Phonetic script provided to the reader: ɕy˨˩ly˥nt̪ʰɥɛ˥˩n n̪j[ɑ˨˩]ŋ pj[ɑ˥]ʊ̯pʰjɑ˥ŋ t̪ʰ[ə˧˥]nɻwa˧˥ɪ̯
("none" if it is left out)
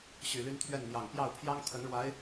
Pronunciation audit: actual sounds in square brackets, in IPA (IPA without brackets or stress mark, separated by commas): ɑ˨˩, ɑ˥˩, ə˧˥